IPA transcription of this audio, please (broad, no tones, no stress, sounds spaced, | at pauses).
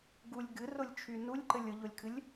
ɡ u lʲ ɡ ɨ r ʊ lʲ t͡ʃʰ y n u lʲ ǃ ɘ lʲ ʊ ʎ ʊ lʲ kʰ ɨ lʲ